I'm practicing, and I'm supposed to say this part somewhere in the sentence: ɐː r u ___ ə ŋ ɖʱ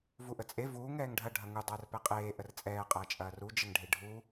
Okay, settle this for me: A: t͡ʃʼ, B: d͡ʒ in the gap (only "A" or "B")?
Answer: B